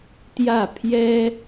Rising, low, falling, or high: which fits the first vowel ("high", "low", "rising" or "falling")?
falling